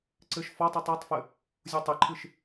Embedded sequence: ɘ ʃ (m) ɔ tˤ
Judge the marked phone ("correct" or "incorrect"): incorrect